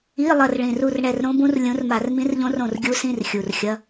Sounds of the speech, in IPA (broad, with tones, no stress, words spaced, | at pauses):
i˧˥˧lˠɐ˦˨r ɭĩ˨˩ru˦˨r ɳɛ˦˨rɾõ˦˥bũ˦˥r lʲũ˨˦rma˧˩˧rmĩ˦˥rʎõ˦˥r õ˦˨rɡʲu˦˥sĩ˧˥˧r xʲu˨˩rxʲɐ˧˥˧